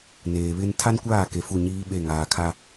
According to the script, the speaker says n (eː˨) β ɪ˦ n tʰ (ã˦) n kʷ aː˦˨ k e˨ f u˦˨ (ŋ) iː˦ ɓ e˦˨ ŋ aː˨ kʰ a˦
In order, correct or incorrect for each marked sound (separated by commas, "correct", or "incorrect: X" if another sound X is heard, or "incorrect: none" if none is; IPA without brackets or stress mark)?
correct, incorrect: a˦, incorrect: ɲ